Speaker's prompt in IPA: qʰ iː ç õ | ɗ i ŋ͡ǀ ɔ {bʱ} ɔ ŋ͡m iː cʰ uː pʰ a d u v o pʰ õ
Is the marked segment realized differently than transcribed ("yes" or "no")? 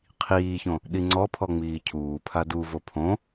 yes